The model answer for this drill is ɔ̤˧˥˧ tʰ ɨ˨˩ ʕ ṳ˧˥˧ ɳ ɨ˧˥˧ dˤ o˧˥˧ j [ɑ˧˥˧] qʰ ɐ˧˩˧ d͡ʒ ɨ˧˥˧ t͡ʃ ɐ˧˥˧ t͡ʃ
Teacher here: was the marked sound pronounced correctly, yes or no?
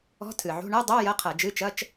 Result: no